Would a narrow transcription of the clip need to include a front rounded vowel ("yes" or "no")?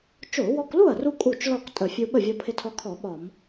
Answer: no